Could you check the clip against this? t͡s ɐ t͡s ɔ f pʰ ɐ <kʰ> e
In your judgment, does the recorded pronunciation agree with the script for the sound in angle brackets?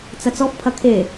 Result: yes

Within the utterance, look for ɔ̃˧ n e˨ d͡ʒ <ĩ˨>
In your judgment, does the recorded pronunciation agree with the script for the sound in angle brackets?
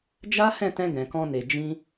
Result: no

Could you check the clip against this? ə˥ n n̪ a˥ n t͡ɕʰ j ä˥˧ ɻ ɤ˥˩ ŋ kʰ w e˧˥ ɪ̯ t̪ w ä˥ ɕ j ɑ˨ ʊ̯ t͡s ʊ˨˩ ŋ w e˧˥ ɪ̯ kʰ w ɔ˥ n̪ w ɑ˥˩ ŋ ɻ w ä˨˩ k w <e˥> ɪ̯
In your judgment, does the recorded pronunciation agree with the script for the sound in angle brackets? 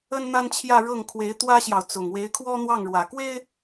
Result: yes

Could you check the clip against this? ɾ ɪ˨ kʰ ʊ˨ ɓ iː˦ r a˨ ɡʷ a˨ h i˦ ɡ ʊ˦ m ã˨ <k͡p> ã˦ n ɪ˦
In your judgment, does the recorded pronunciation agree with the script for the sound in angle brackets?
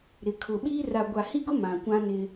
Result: no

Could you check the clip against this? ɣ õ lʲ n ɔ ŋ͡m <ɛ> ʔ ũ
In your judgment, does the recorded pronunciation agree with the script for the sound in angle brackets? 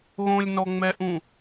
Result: yes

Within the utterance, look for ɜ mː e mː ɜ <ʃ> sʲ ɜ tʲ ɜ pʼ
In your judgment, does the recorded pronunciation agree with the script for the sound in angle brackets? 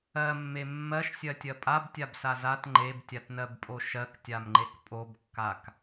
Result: yes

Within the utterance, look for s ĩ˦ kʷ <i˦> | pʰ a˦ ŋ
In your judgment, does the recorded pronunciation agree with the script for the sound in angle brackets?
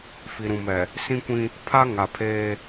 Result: no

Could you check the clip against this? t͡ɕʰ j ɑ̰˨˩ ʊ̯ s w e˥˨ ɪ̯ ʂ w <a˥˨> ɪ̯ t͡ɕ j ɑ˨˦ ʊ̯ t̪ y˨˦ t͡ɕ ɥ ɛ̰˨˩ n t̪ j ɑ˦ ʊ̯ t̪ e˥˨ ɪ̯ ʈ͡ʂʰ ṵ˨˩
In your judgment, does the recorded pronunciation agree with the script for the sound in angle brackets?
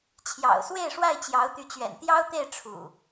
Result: yes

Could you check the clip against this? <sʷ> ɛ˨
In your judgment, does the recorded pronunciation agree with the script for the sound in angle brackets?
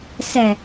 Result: no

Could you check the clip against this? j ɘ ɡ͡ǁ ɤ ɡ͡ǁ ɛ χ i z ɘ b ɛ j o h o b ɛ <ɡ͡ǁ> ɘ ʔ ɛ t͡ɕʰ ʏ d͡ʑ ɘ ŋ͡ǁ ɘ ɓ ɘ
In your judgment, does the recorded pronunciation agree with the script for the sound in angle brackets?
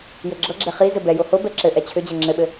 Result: no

